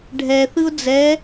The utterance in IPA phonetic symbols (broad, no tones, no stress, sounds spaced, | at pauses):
ɖʱ ɛ θ ɯ ʊ̯ d͡z ɛ